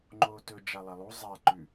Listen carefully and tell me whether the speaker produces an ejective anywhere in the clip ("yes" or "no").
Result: no